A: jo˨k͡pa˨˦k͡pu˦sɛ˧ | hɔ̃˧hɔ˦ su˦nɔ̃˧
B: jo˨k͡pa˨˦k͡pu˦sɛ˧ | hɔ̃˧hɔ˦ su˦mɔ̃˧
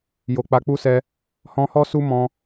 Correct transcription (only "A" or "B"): B